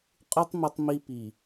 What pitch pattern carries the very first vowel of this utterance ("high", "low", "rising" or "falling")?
high